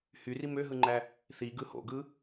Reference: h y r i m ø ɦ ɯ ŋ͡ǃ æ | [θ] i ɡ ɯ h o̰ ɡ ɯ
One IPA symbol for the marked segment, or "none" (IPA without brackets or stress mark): θ